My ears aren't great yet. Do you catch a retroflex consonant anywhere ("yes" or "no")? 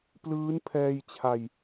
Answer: no